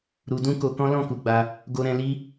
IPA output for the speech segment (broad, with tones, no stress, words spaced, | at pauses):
ɾu˧dũ˦ ko˧kɔ̃˦ lɔ̃˦˨ku˧ɡ͡ba˧ | ɡo˧ɾɛ̃˧ li˦